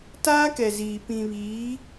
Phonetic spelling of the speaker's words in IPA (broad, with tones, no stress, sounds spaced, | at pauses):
t aː˦ k ɛ˨ z iː˨ p ĩ˨ β iː˨˦